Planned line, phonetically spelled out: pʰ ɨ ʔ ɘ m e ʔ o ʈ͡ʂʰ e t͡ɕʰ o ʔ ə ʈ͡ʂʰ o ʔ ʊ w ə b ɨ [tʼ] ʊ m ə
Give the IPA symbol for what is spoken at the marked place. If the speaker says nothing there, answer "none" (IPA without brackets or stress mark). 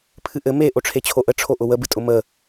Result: tʼ